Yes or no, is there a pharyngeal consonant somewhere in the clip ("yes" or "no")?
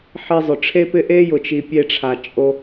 yes